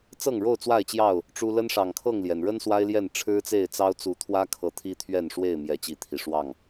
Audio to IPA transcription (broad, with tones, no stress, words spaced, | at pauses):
t͡sɤ˥˨ŋɻo˥˨ʊ̯t͡swa˥˨ɪ̯t͡ɕjɑ˥˨ʊ̯ | ʈ͡ʂu˦ lə˦nʂɑ˨˩ŋkʰɤ˥˨ŋljɛ˩n ɻə˦n swa˦ɪ̯ljɛ˥˨n ʈ͡ʂʰɻ̩˦t͡se˥˨ɪ̯t͡sɑ˦ʊ̯ t͡su˨˦t̪ʰwä˦kʰɤ˨˦ t̪ʰi˦t̪ʰɥɛ˥˨nʂwe˥˨ɪ̯ mjɛ˨˦t͡ɕi˨˦t̪ʰi˨˩ʂwɑ˥˨ŋ